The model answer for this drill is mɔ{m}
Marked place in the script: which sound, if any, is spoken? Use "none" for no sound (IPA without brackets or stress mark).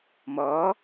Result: none